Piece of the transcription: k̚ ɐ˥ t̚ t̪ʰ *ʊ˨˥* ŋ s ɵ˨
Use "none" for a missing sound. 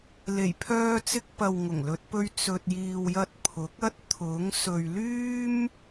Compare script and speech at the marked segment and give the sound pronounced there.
ʊ˨˥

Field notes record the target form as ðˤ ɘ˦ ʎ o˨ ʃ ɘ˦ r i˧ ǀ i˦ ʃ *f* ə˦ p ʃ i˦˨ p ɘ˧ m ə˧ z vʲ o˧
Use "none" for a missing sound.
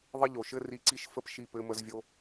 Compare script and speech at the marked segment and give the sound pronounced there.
f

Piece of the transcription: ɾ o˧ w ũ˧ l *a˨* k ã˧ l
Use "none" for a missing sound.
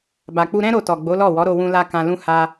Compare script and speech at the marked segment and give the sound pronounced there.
a˧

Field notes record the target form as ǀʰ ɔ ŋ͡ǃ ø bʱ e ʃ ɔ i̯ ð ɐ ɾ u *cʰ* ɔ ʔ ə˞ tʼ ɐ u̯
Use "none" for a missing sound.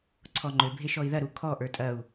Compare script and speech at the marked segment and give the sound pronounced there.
kʰ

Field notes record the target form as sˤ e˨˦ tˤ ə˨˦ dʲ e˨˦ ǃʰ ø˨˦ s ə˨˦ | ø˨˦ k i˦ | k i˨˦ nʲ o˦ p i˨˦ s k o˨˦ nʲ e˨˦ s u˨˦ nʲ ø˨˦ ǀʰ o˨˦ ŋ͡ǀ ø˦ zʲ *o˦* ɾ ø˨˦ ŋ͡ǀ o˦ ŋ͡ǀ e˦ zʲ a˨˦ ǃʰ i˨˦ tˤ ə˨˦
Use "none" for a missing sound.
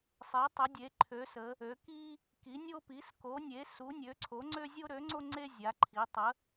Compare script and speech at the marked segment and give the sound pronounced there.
o˦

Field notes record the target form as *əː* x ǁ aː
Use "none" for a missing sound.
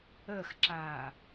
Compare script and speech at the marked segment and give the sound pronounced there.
əː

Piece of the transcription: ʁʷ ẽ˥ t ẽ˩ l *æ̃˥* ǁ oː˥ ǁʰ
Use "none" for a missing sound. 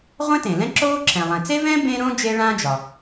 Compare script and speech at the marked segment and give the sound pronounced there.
ɛ̃˥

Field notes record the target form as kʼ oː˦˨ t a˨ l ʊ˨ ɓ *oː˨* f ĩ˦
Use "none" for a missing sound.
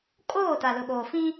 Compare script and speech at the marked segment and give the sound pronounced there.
oː˨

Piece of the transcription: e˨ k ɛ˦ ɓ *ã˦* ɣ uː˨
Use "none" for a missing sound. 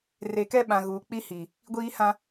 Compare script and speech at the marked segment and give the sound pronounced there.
ã˨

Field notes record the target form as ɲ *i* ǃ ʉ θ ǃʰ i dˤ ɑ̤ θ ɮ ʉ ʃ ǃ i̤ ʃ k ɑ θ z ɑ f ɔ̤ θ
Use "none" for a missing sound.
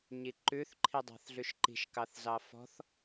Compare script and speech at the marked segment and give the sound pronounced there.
i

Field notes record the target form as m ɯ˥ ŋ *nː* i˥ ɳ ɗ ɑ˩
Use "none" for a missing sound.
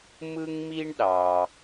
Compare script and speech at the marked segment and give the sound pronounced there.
m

